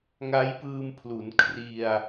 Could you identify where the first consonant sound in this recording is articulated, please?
velar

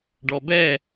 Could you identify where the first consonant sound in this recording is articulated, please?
retroflex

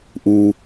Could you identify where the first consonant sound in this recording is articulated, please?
glottal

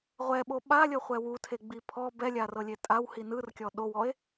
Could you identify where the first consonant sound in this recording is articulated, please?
uvular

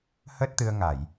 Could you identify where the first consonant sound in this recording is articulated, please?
glottal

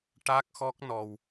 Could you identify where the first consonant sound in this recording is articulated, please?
retroflex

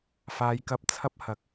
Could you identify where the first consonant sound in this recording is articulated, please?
labial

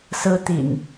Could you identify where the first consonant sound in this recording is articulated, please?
alveolar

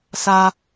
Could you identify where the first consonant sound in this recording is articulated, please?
alveolar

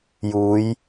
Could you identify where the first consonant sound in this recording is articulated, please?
palatal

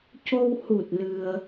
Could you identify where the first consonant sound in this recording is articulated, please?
palatal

